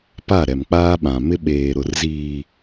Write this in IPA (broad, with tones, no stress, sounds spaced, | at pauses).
p a˦˨ ɾ ɛ˨ m k͡p aː˦ ɓ ã˨ m ɪ˦ ɓ eː˨ ɾ ʊ˨ r z iː˨